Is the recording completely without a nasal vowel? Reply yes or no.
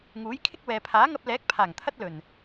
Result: yes